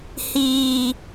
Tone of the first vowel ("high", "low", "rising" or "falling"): low